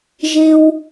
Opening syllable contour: high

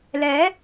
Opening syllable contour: rising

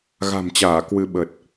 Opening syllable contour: low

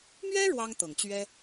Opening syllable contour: high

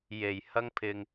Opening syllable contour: low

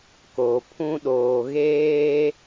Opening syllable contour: low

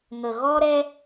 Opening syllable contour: low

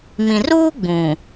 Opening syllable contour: low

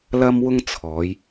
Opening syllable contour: high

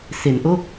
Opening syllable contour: low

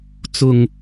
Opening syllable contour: low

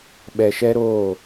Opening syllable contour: low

